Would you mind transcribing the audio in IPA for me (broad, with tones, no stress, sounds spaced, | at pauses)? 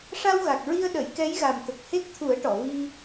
ʂ a˧ w ɣ a˨˩ k̚ ɹ i˧ ə̯ ɗ ə˨˩˨ j k ɛ˧˥ j ɣ a˨˩ m t̪ ə˨˩ k̚ h e˦˥ k̚ t̪ʰ u˨˩˦ ə̯ ʈ ɔ˨˩˨ v i˧